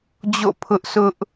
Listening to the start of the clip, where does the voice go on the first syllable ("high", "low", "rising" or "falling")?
falling